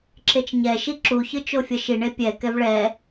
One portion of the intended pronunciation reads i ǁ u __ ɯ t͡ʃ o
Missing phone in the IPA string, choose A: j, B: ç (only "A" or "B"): B